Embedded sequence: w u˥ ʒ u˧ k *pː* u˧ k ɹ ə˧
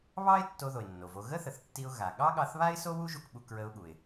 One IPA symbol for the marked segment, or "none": ɓ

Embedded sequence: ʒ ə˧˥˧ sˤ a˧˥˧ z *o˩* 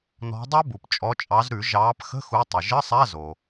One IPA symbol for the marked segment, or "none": o˩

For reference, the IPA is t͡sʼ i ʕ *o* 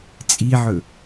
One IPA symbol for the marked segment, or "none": ɵ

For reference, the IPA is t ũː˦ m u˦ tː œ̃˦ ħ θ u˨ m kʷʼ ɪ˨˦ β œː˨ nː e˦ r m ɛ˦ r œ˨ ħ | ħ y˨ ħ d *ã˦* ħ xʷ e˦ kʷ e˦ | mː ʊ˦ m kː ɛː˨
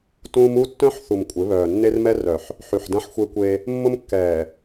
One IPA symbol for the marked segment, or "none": ɐ̃˦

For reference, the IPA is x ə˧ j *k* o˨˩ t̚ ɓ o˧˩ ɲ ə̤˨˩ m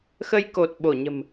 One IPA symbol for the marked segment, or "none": k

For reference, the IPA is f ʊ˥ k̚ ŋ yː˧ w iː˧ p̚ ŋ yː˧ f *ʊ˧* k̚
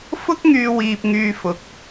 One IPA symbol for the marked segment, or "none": ʊ˨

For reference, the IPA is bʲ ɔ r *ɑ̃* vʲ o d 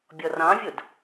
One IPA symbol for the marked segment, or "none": ɑ̃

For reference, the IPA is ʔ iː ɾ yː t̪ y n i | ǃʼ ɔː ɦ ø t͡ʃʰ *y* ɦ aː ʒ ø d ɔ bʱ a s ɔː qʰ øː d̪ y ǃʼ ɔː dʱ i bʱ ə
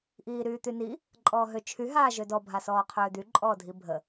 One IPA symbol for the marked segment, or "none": y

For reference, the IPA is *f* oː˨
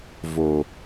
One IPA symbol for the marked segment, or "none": v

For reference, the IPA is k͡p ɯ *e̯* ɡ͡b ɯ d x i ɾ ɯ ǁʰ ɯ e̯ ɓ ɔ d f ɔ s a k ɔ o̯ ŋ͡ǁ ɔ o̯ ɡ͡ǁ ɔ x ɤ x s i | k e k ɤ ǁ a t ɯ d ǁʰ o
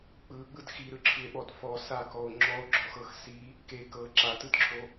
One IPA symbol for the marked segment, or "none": none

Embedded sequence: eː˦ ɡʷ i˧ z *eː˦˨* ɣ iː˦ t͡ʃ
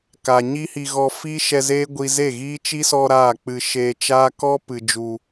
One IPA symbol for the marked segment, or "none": e˦˨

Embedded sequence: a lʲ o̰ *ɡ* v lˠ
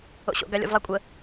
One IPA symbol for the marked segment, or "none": none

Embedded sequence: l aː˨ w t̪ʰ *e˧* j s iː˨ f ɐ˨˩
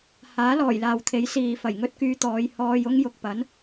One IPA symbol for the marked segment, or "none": e˨˥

